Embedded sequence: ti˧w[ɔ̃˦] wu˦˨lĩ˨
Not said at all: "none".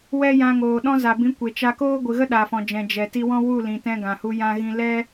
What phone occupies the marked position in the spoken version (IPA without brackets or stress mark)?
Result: ɔ̃˦